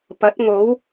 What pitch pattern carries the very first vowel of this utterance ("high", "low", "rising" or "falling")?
rising